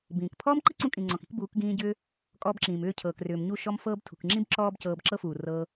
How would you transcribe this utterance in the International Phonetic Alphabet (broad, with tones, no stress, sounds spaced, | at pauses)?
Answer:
b ĩː˨ k pʰ ɔː˦ m ǃ i˦ ǀ ũ˧ kʼ ĩ˨ ŋ͡ǀ ɔ̃˨ k i̤˧ k b uː˨˦ k ɡ ĩː˧ ɟ ʏː˧ | kʼ ɔː˧ b ǁ ĩː˨ m ʏː˦˨ cʰ ɤː˨ k r ʏː˨ m ɲ u˦˨ ʃ ɔ˦ m f ɤː˦ b tʰ ṳ˨ k ŋ͡ǁ ĩ˦ b ǁ ɔː˦ b c ɤː˧ b ǁ ɤ˦ f uː˨ r ɤː˦